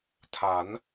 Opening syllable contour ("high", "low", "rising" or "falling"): rising